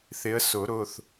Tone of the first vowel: rising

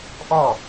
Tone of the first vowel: falling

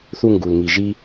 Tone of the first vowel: high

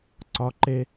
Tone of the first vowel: high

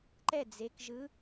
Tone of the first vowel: falling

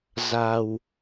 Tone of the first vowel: low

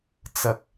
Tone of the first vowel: low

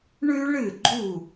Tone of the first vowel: high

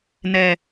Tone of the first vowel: low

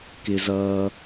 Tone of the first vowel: low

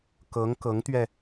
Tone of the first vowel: rising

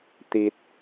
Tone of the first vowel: low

